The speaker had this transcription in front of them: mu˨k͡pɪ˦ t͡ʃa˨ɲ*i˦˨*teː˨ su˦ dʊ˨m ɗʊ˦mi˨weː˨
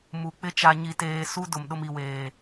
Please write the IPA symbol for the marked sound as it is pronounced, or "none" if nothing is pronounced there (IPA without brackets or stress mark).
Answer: i˨